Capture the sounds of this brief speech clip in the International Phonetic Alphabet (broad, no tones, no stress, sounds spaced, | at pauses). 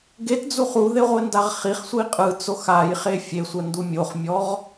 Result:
ɡ e t d͡z u χ u ð e ʁʷ e n d a ʁ χ i χ sʷ i qʼ ɯ t͡s o x a j χ e fʲ e sʷ ɛ n d u mʲ o χ mʲ ɔ ʁ